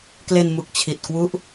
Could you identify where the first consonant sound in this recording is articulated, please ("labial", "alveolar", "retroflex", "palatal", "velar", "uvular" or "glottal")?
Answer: velar